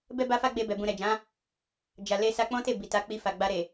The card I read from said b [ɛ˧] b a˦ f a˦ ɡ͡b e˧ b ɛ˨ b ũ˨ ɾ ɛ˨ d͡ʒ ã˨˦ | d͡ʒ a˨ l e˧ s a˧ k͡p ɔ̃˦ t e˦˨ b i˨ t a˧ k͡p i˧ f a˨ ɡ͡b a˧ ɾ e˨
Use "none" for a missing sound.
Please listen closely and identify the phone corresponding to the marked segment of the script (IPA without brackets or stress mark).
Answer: ɛ˦